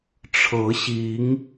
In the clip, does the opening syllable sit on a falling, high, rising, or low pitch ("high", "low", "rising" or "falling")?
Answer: rising